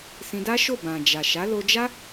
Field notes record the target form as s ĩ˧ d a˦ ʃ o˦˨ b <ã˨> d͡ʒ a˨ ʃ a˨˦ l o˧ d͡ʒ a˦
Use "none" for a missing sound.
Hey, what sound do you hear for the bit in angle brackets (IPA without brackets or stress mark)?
ã˨